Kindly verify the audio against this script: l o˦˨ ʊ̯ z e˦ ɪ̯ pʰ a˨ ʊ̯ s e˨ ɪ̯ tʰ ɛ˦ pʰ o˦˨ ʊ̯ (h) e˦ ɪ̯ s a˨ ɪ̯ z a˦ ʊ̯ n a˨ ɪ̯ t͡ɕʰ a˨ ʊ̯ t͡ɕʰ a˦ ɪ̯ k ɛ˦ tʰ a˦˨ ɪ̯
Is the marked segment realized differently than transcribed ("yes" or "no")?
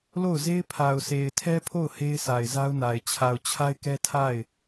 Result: no